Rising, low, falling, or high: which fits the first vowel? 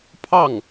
falling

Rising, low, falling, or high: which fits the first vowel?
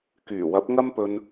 low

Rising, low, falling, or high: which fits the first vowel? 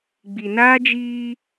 low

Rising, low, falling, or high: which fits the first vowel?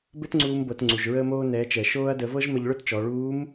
high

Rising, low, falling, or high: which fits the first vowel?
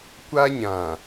high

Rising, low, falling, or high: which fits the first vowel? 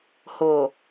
low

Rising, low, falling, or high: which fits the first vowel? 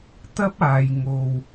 high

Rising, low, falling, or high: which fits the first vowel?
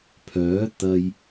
rising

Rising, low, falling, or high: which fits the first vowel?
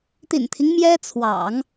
low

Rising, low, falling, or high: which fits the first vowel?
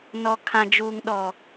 high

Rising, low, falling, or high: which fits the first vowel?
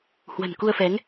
low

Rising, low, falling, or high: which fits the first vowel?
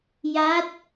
rising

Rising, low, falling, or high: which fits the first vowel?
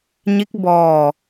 rising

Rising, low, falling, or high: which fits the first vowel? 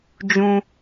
low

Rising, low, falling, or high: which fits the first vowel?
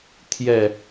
falling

